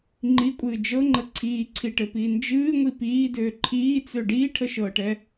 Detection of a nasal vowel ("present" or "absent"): absent